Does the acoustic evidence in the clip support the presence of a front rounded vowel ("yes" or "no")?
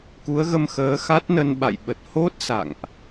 no